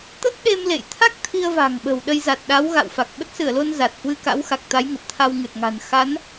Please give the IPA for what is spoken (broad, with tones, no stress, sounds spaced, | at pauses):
t̪ ə˦˥ t̚ ɗ e˧ m l ḛ˧˨ j t̪ʰ a˦˥ k̚ t̪ʰ i˧ ə̯ v a̤˨˩ ŋ ɓ ə̤˨˩ w ɗ ə˧ j z a˨˩ t̚ ɗ a˨˦ w ɣ a̰˧˨ w f a˨˩ k̚ ɓ ə˦˥ t̚ s ɨ˧˩ ə̯ l o˧ n z a˨˩ t̚ h w ɨ˧ k a̰˧˥ w x a˨˩ k̚ t̪ a˨˦ j ŋ ə˨˩ p̚ t̪ʰ a˧ w ŋ ɨ˨˩ t̚ ŋ a̤˨˩ n x a˨˦ n